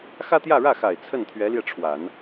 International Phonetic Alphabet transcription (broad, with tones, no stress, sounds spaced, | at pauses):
x ä˥ t̪ j ä˥˧ ɻ ä˥˩ x a˨˩ ɪ̯ t͡sʰ ə˥˩ n t̪ʰ ɥ ɛ˧˥ l j ɛ˧ ʈ͡ʂʰ w a˨˩˦ n